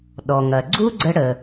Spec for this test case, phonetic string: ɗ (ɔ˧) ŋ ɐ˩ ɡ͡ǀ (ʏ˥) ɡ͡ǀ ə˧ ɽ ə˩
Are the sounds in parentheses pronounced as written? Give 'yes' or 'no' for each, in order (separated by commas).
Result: no, no